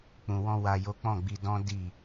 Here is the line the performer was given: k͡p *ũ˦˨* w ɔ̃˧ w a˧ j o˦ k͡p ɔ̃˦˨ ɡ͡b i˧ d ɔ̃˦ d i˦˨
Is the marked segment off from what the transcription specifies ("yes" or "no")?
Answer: yes